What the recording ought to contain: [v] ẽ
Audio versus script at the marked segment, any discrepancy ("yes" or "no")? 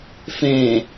yes